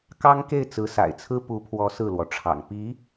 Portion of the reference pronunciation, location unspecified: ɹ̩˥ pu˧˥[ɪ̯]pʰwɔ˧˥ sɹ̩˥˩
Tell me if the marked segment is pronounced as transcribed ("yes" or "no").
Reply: no